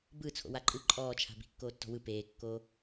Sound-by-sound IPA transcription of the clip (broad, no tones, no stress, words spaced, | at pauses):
bɯ t͡sʰo̰waǃʼɯ ǃʼɔːt͡ʃʰa̤ bi̤kːoːtːɔ̤wɯ peːkːoː